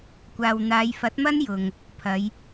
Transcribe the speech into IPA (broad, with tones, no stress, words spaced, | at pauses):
kʷaː˨w n̪aː˨˧jfɐ˨˥t̚mɐ˥n jʊ˨ŋ | pʰɐ˨˧j